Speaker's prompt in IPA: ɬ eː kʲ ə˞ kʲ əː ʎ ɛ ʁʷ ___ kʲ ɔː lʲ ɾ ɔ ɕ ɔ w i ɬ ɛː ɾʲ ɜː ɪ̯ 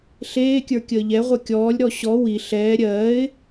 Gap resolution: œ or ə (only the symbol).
œ